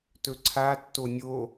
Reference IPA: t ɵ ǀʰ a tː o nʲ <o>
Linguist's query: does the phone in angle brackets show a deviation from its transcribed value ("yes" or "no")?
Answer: no